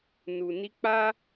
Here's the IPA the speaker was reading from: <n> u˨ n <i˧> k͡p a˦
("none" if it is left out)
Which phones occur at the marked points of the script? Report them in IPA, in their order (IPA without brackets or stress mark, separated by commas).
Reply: n, i˧